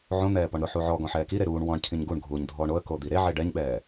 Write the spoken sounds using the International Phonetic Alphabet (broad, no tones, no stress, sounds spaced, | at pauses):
ʕ õ n̪ ɛː p ɔ ɳ ɾ ʊ ħ u ʕ ɔ ɡ ɔ̃ ħ ɛː k i ɾ e ɾ uː ɳ w ɔ̃ ɳ cʰ ĩ ɲ ɡ u ɳ ɡʱ uː ɲ dʱ ɔː ɳ o ə̯ k o d̪ i ɾ e ʕ e ɖ ɛ ɲ ɓ ɛː